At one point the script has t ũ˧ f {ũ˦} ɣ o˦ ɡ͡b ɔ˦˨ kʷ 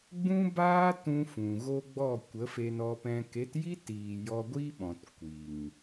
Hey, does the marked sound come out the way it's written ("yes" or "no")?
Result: no